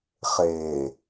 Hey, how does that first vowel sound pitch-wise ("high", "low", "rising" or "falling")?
low